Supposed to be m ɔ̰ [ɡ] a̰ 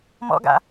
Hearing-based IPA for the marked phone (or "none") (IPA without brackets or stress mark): ɡ